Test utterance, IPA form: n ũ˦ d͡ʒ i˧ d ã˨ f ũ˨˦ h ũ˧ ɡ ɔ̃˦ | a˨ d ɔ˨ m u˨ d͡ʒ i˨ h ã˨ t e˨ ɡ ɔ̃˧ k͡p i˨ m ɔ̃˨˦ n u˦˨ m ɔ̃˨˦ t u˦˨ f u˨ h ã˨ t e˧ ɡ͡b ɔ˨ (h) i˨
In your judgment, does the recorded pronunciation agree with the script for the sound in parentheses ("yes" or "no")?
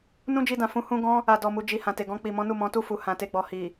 yes